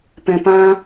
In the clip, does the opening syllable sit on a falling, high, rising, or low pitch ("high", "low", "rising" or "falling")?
low